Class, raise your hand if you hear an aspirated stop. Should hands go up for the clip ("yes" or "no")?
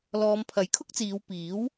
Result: yes